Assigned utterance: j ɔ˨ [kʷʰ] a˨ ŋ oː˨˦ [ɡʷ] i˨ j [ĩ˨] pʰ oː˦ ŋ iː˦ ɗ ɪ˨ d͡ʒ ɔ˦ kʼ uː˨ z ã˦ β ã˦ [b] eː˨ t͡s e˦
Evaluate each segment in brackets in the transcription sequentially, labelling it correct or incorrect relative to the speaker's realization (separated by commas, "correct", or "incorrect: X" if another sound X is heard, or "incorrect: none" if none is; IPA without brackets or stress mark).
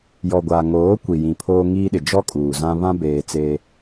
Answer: incorrect: ɡʷ, incorrect: kʷ, correct, correct